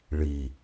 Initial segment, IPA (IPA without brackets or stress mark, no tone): ɭ